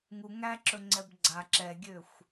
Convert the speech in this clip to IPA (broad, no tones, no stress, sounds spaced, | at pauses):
ŋ u ŋ æ ǁ ɵ ŋ͡ǀ ɛ b ɡ͡ǀ a ǁ ɛ ɡʲ ø xʷ